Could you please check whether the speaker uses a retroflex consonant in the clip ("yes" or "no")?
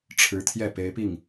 yes